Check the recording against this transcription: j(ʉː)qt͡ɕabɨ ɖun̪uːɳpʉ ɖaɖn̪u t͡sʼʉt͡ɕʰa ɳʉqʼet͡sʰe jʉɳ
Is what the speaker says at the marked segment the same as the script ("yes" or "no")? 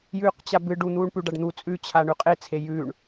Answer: yes